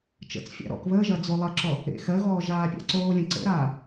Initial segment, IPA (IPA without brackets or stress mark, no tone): t͡ʃ